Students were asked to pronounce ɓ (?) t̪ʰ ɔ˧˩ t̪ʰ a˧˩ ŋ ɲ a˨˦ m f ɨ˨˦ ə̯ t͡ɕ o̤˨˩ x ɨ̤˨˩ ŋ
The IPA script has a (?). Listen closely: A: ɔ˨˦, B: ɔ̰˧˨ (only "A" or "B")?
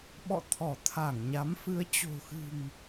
B